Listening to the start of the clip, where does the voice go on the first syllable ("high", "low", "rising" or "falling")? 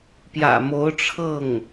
low